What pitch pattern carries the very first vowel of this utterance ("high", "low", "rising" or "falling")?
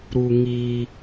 high